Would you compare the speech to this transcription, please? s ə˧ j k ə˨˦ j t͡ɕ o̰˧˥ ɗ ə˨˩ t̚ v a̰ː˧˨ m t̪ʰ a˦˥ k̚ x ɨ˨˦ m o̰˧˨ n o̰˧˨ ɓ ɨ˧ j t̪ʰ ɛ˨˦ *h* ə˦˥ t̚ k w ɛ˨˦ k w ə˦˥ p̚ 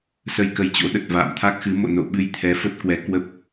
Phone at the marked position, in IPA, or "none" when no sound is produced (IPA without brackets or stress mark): f